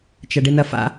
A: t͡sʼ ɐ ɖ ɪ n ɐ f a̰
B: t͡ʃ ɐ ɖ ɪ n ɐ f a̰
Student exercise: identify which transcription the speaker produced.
B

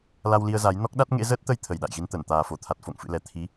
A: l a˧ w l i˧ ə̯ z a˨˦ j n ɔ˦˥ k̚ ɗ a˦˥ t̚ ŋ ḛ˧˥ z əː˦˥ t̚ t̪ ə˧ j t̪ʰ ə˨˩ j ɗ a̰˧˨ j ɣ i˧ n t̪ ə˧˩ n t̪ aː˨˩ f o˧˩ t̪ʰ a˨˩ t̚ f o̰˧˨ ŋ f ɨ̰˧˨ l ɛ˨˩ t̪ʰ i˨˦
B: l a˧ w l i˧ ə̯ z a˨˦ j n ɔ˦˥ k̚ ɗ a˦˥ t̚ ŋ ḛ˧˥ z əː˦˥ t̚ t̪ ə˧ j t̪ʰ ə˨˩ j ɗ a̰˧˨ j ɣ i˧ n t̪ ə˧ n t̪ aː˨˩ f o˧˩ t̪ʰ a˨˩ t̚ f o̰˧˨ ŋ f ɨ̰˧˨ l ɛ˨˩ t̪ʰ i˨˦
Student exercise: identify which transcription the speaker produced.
A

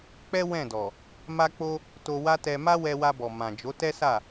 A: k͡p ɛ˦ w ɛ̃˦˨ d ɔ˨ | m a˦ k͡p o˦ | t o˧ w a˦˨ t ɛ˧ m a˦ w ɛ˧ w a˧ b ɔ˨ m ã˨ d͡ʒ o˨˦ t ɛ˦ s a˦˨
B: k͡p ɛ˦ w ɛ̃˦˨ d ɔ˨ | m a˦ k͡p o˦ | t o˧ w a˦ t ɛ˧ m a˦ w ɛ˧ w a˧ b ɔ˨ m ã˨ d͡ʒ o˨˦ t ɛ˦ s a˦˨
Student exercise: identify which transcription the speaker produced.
B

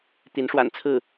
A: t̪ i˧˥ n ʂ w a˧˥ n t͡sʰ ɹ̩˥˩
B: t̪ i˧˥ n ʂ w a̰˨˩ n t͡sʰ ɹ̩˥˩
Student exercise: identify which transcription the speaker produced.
B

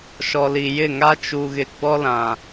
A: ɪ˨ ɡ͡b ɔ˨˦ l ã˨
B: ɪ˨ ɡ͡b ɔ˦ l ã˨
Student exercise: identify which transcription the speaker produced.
B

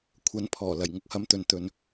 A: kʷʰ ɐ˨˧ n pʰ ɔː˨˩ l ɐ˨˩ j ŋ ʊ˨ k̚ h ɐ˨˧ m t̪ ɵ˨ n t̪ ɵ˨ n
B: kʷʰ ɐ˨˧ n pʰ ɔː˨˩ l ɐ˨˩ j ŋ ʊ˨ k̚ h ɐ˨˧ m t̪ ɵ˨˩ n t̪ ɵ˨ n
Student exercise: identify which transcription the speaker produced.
A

